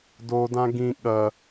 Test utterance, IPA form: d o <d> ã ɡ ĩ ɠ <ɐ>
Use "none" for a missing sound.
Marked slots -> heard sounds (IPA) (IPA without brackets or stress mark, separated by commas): d, ɐ